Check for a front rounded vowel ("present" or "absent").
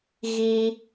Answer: absent